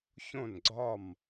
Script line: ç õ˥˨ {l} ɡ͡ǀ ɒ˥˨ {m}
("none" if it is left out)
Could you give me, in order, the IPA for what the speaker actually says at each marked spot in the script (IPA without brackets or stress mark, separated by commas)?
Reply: n, m